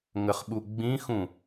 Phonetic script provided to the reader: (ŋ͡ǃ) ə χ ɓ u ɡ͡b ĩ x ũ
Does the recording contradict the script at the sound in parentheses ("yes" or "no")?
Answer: yes